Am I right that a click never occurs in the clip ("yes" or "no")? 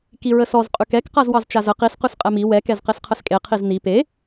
yes